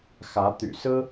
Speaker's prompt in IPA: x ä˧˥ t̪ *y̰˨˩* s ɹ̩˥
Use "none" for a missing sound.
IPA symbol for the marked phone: y̰˨˩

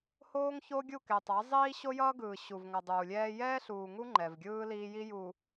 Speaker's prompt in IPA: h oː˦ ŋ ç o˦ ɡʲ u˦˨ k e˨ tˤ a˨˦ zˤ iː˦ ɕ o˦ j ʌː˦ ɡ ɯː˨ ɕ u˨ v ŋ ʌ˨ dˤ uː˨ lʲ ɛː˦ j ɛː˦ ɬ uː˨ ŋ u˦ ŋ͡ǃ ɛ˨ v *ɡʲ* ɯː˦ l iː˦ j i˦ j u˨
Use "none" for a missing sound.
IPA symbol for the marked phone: ɡʲ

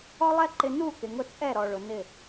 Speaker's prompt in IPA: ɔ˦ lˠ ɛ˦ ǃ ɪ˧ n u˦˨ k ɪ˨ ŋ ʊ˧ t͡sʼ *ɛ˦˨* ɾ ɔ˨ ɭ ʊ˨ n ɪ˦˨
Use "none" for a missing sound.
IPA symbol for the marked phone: ɛ˦˨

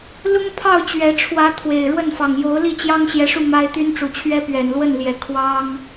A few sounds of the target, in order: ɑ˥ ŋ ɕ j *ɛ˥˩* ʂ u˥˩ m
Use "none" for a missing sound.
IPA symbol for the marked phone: ɛ˧˥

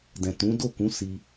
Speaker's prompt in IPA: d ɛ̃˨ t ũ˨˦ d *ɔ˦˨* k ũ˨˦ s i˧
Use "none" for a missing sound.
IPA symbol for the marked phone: o˦˨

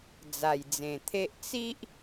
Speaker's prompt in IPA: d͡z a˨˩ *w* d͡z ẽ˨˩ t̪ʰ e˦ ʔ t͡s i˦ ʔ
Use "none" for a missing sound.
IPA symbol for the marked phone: j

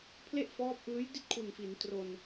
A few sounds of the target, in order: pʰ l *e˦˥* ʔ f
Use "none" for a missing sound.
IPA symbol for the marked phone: e˥˩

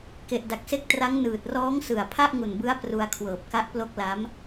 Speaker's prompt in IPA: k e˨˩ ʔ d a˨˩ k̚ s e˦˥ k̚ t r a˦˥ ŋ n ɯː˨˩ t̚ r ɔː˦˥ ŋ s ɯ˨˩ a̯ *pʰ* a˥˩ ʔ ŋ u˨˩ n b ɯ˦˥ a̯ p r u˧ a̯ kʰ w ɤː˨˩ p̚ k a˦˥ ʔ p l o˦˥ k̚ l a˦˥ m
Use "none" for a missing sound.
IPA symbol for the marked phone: pʰ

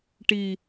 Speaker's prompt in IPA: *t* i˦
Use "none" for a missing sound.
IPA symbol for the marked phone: ʈ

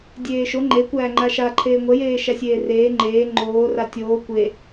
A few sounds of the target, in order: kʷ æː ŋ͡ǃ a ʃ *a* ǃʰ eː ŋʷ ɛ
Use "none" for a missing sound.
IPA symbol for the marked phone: a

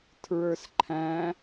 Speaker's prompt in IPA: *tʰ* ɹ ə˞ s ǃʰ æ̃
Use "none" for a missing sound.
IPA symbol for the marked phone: tʰ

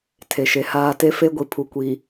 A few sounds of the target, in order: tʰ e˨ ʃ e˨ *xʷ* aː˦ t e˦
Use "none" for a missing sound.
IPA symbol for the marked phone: h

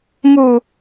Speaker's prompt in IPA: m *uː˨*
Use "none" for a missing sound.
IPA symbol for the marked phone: uː˨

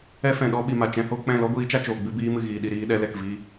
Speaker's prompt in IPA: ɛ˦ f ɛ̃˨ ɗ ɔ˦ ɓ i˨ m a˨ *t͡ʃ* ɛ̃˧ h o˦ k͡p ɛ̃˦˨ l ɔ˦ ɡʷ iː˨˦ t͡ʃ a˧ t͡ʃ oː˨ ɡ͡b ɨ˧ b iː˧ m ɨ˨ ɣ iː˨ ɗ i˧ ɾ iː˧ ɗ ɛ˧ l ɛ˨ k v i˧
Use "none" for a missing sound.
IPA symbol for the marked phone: t͡ʃ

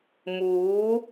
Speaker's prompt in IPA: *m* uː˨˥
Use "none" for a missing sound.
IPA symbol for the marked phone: m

